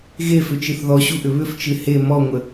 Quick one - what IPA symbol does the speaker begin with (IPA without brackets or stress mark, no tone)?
ɣ